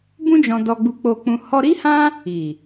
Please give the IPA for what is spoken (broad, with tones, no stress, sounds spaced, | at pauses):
b ũ˦ d͡ʒ ɔ̃˧ d ɔ˧ ɡ͡b u˧ k͡p o˦ k͡p ũ˦ h ɔ˦ ɾ i˦ h ã˦ | i˨